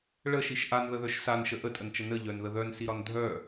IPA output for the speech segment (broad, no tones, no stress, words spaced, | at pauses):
ɭəʃiʃ ʔanðəðœʃ sanʃə ʔətʼənt͡ʃə nəʎœnðə ðœnsiɾɒn dʱœ